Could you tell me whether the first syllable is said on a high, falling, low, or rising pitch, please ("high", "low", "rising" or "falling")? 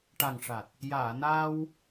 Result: low